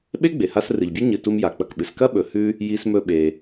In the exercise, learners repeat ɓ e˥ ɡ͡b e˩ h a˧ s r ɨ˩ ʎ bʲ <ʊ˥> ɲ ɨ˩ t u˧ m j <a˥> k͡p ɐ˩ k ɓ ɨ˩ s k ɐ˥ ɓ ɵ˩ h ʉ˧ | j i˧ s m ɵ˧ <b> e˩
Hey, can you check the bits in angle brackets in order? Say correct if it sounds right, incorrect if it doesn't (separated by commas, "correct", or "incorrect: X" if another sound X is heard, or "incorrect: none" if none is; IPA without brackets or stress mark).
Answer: incorrect: ʉ˥, incorrect: a˩, incorrect: ɓ